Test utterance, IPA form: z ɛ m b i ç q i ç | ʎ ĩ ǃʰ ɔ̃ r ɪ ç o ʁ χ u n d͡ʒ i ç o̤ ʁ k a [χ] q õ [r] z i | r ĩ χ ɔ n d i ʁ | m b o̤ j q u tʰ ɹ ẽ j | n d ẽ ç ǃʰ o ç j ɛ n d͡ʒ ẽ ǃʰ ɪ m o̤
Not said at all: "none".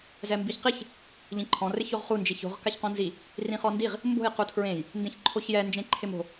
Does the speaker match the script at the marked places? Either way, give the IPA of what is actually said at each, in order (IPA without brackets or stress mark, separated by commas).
ç, n